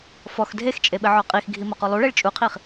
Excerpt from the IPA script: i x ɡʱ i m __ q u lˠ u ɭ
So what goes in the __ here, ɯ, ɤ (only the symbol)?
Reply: ɤ